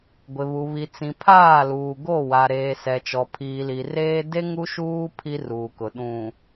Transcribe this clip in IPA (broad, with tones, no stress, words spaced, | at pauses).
ɡʷɪ˨βu˨ βi˨t͡sĩ˨pʰaː˦˨ luː˨ɡo˦˨wa˨ ɾeː˨sɛ˨ t͡ʃɔ˨pʰiː˨li˨reː˦ de˦ ŋu˦ʃuː˦ pʰi˦ruː˨kʊ˨ ɗũ˨